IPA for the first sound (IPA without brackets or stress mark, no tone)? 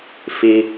f